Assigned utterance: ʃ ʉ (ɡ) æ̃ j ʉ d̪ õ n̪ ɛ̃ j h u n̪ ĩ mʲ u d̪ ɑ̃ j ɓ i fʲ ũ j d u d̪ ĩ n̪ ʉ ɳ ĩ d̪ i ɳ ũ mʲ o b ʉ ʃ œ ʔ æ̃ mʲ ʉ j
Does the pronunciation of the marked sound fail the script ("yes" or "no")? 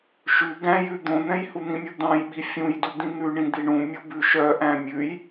no